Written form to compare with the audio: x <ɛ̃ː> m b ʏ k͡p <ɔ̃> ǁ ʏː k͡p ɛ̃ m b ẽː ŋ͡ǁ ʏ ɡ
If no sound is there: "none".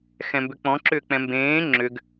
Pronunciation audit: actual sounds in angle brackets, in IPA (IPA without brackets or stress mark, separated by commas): ɛ̃, ɔ̃